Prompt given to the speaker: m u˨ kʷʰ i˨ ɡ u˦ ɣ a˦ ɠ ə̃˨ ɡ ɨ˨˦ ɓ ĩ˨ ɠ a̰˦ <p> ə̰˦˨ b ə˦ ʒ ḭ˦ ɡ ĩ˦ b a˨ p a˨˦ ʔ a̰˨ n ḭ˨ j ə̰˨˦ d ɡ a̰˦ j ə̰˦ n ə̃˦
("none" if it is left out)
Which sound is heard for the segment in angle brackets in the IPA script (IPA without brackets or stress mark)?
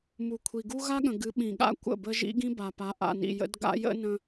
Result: kʷ